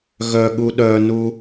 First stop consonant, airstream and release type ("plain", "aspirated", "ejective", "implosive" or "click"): implosive